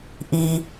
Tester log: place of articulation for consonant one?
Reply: glottal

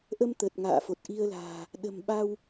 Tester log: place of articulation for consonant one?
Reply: glottal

